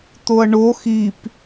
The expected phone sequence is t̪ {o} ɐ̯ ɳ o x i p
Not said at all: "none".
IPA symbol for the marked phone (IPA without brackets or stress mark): o